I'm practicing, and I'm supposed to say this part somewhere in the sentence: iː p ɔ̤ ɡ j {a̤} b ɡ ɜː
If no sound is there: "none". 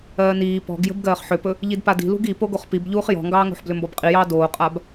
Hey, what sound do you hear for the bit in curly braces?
ə̤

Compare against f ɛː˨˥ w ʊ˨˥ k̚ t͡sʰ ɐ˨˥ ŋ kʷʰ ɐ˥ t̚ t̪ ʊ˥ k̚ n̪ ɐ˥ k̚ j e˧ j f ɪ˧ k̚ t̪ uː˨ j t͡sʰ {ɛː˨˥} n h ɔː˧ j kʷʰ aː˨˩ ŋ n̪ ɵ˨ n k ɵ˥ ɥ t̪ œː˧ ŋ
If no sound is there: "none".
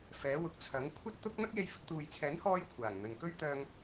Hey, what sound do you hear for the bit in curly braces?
ɛː˨˥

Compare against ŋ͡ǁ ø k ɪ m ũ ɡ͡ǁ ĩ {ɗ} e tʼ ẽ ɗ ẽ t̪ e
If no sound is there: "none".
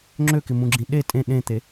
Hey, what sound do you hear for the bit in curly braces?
ɗ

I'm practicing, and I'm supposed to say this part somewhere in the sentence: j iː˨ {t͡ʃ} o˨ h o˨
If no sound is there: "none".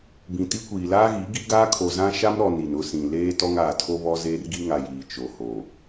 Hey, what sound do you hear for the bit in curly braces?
t͡ʃ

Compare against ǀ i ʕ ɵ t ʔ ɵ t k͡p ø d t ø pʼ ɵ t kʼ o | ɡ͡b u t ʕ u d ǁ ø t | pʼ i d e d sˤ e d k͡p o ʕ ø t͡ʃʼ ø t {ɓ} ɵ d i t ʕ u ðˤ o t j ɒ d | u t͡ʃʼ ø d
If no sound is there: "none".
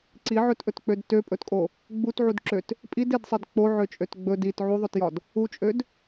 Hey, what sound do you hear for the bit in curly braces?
ɡ͡b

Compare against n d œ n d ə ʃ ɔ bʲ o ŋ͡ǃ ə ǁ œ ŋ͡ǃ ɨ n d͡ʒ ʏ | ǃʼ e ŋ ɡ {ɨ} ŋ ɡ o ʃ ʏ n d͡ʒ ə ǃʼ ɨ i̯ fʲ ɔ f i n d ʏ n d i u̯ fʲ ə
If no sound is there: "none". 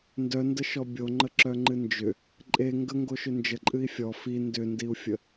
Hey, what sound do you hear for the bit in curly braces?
ə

